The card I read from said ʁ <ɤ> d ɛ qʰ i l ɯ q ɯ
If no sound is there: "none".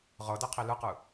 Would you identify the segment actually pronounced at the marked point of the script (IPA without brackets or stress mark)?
ɤ